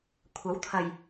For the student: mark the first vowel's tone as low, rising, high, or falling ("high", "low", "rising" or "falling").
rising